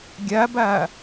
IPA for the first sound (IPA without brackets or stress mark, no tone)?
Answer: ɡʲ